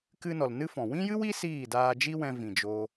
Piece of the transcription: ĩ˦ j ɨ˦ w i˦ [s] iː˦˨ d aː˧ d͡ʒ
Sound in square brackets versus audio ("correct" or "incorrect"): correct